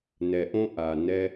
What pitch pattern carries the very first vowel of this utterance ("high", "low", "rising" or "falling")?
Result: low